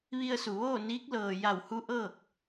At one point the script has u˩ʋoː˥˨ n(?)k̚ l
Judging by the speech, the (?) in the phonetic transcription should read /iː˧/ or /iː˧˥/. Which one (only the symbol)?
iː˧˥